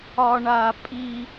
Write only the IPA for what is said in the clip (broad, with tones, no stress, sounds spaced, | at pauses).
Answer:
ɒ˦ ɳ a˦ pʼ i˦